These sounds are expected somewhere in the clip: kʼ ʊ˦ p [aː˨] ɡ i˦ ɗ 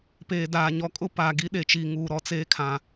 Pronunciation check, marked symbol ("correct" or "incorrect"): correct